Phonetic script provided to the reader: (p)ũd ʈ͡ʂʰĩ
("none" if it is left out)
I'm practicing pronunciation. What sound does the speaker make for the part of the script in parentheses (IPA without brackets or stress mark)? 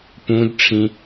p